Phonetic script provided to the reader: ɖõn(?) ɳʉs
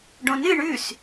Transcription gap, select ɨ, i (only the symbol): ɨ